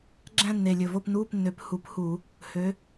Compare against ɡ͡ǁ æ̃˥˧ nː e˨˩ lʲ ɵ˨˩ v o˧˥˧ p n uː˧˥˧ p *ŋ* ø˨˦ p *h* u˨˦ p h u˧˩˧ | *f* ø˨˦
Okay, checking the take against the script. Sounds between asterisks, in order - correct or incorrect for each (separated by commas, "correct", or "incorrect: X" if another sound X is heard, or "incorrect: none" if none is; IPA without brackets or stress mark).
incorrect: nː, correct, incorrect: h